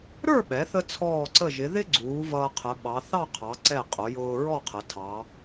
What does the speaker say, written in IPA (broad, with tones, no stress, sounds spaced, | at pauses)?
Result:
ɾ ə˞˥˧ ɓ ɛ˩˧ θ ə˧ t͡sʰ ɔː˧˩ ǀ ə˧˩ ʒ ɪ˩˧ ð ɪ˥ ɡ͡ǀ uː˩˧ v ʌː˧ qʰ ə˩˧ ɓ ɑ˩˧ θ ɑ˥˧ qʰ ɑ˩˧ ǀ ɛ˧˩ qʼ ʊ˩˧ j ʊː˧ ɹ ɔ˥˧ qʰ ə˩˧ tʰ ɑ˩˧